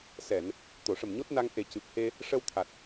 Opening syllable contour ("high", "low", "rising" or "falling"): low